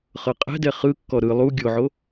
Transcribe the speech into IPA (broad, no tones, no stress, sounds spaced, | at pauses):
χ ɤ qʼ ɛ̤ d ɛ χ ɯ kː ɔ ɾ ɯ lˠ u ɡʲ o ʕ o